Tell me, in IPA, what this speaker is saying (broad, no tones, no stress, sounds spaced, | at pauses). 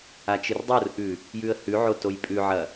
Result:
a t͡ʃ ɨ r dˤ o r ʔ ʉ | j ʉ ə̯ h ʉ ʕ o t o j pʼ ʉ ʕ ɐ